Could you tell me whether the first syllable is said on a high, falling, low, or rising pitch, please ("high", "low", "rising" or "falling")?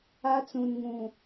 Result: high